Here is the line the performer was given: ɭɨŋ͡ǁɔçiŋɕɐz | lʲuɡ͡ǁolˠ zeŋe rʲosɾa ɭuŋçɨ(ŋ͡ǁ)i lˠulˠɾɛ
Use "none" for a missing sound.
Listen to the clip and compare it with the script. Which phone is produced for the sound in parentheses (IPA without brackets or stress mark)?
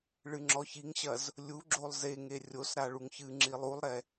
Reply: ŋ͡ǁ